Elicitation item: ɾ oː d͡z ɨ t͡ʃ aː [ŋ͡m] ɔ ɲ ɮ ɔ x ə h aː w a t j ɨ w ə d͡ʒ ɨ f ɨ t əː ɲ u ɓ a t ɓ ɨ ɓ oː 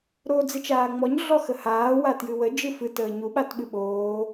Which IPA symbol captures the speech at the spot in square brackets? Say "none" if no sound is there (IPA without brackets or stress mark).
ŋ͡m